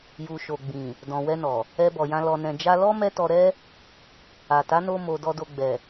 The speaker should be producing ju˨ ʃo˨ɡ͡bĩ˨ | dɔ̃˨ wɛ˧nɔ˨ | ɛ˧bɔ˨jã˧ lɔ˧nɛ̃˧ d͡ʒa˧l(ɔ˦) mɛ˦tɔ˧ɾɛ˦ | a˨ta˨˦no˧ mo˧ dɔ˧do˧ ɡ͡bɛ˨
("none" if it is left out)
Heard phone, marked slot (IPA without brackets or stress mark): ɔ˦